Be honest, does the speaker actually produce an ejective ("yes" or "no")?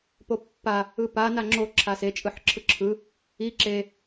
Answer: yes